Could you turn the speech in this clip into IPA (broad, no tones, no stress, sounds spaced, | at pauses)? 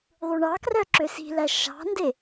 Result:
ðˤ u ɳ ɑ k r œ ǁ ø s i̤ l æ ʃ ɑ̤ n d e